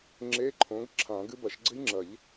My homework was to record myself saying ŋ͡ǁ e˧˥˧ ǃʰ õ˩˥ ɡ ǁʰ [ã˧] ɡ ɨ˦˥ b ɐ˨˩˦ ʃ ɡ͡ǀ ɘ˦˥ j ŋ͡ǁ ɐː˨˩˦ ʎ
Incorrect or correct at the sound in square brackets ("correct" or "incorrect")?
incorrect